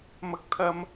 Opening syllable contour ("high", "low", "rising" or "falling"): high